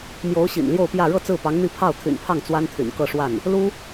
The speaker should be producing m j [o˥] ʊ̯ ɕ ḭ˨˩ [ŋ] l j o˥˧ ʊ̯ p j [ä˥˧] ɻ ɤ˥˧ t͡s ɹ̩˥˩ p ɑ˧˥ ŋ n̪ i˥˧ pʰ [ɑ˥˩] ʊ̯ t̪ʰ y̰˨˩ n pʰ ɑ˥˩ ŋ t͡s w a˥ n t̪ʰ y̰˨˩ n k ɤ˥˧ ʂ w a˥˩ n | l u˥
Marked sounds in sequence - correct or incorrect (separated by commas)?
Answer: incorrect, incorrect, correct, correct